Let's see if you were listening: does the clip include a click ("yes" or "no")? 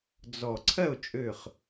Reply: yes